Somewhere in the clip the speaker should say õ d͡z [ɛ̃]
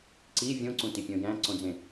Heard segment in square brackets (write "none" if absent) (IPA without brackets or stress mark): ẽ